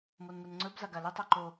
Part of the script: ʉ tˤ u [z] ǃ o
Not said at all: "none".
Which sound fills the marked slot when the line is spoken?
none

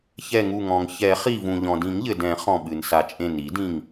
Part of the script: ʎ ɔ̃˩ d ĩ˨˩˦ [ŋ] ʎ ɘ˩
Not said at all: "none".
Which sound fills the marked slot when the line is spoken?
ŋ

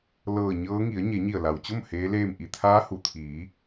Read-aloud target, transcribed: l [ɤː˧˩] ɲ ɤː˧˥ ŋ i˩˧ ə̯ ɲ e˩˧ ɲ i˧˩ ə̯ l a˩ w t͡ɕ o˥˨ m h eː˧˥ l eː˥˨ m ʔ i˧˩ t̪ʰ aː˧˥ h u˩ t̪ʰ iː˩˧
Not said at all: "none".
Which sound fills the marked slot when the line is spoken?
ɤː˧˩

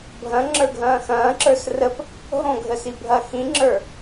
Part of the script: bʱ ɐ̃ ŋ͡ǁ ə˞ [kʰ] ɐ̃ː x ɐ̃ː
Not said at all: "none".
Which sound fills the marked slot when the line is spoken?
ɡʱ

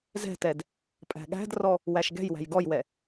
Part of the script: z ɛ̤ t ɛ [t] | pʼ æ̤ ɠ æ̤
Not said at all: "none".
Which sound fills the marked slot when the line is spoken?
d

